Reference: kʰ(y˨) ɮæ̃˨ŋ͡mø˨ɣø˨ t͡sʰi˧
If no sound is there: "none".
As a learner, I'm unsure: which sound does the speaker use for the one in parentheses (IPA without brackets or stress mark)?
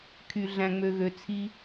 y˨